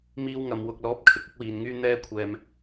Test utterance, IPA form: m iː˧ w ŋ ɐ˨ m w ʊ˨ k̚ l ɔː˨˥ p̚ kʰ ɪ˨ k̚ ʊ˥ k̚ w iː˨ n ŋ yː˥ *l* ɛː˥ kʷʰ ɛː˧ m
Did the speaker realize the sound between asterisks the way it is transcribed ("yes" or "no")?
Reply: no